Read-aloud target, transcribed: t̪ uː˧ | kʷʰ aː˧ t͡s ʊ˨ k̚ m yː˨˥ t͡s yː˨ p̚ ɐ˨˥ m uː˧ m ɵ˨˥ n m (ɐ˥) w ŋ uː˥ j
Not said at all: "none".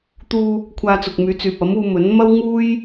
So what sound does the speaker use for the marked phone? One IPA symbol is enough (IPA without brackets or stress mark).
ɐ˥